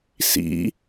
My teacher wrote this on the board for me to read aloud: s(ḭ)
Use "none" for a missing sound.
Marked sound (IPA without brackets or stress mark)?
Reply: ḭ